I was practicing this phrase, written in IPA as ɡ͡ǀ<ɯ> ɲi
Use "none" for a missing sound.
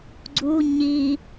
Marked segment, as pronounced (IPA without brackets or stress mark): u